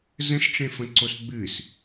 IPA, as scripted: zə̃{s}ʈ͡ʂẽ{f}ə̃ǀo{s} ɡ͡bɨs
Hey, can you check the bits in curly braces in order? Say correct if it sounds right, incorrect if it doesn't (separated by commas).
correct, correct, correct